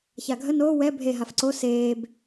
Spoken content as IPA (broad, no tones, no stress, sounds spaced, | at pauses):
ç a ɡʱ ə n oː w ɛ bʱ e ɦ a f ǀ o s eː b